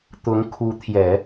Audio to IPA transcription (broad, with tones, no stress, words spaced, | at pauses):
t̪ʊ˧˥ŋ kʰu˧˥ t̪ʰjɛ˨˩˦